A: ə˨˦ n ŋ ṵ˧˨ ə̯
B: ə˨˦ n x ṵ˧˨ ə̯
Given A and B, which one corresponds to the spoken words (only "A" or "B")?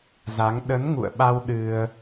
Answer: A